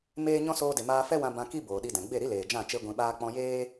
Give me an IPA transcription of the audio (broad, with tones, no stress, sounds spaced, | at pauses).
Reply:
m eː˦ ɲ ɔ̃˦ s oː˧ d e˨ m aː˧ f ɛ˦ w ã˧ b ã˧ k i˦ b oː˨ ɗ i˧ d ɛ̃˨ ɡ͡b e˦˨ ɾ i˦ l eː˨ d͡ʒ ã˦˨ t͡ʃ e˧ ɡʷ ĩ˧ ɓ aː˦ k͡p ɔ̃˧ j eː˦